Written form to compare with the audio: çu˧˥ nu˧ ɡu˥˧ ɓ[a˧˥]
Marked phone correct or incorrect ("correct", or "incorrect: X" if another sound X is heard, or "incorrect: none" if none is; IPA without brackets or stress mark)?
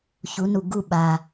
incorrect: a˧